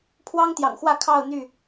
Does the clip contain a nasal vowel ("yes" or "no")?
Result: no